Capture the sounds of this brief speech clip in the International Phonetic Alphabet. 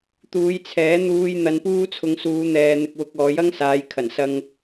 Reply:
t̪ uː˨˧ j t͡sʰ ɛː˨˥ n̪ uː˧ j n̪ ɐ˧ n p uː˥ t͡sʰ ʊ˧ ŋ s uː˨˧ n̪ ɛː˨ n̪ ɪ˧ k̚ w ʊ˧ k̚ ɔː˨˧ j ɐ˥ ŋ s aː˨˧ j kʰ ɐ˨˩ n s ɐ˧ ŋ

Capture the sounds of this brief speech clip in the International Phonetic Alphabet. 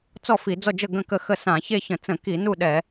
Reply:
t͡s ɔ˥˨ f i˧˩˧ d͡z ɔ˥˨ d͡ʒ ə˥˨ ɡ ə̃˥˨ k ə˥˨ x ə˥˨ s ã˧˩˧ ç e˥˨ ç ə̃˧˩˧ t͡s ə̃˧˩˧ k i˧˩˧ n u˥˨ ɗ ɛ˧˩˧

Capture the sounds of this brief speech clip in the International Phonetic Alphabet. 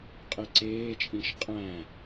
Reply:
qʼ e ǀ eː t͡ʃʼ ĩ ʃ qʼ æ̃

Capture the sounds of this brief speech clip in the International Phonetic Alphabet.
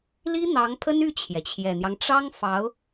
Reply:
l i˥ n̪ ɑ˧˥ ŋ pʰ ə˥ n y˥˩ t͡ɕʰ j ɛ˩ t͡ɕʰ j ɛ˨˩ n̪ j ɑ˦ ŋ ʈ͡ʂ ɑ˥ ŋ f ɑ˧˥ ʊ̯

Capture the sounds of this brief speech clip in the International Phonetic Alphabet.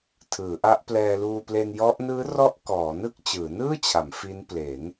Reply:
tʰ ɯː˩˦ ʔ a˦˥ ʔ p l ɛː˧ l uː˧ p l e˧ n j ɔ˦˥ ʔ n ɯː˦˥ r ɔ˦˥ ʔ k ɔː˩˦ n ɯ˥˩ k̚ t͡ɕ ɯː˩˦ n ɯː˥˩ t͡ɕʰ a˩˦ m f i˦˥ n p l e˩˦ n

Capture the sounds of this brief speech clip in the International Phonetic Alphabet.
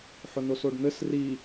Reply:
ħ ʊ n o s o ɖ n̪ ɘ s r i

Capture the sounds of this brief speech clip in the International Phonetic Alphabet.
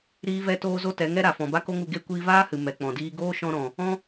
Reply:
ɾ iː˦ v ɛ˦ t oː˦ z o˦ t ɛ˨˦ ŋ ɛ˦ ɾ a˨ f ɔ̃˨ b a˦ k o˦ ŋ u˧ ɡ e˦˨ kʷ iː˧ v aː˦ h ɨ˨ m ɛ˨ k͡p ɔ̃˨ d iː˦ ɡ oː˦ ʃ ɔ̃˧ ɾ ɔ̃˨ | ɔ̃˦

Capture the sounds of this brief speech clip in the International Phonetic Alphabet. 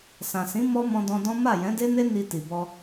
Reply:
s ã˨ s ĩ˨˦ m ɔ˦ m ɔ̃˧ d ɔ̃˧ d ɔ̃˦ m a˦˨ j ɛ̃˨˦ d e˦ n e˦ n i˧ t i˨ b ɔ˧

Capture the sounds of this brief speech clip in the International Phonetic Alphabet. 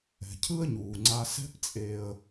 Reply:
ɛ̤˩ cʰ ɯ˥ ə̯ ɲ uː˩ ŋ͡ǀ a˧ s ɛ̤˥ p t͡sʼ e˧ ə̯

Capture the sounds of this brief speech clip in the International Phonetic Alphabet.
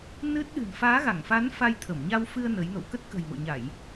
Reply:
n ɨ˦˥ t̚ ɗ ɨ̤˨˩ n f aː˨˦ ɣ a˧˩ ŋ f a˨˦ n f a˧ j t̪ʰ ə˧˩ m ɲ a˧ w f ɨ˧ ə̯ n ə˨˦ j n o̰˧˨ w k ə˦˥ t̚ k ə̤˨˩ j m o̰˧˨ ɲ a˧˩˨ j

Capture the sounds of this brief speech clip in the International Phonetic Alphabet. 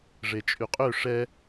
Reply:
ʐ e t͡ʃʼ y qʼ ø ʂ ɛ

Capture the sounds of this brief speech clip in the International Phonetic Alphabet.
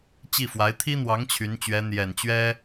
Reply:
t͡ɕ i˥˩ f w a˧˥ ɪ̯ t̪ʰ i˥ n̪ w ɑ˧˥ ŋ t͡ɕʰ y˧˥ n t͡ɕ ɥ ɛ˧˥ n̪ j ɛ˨˩ n t͡ɕ ɥ ɛ˥

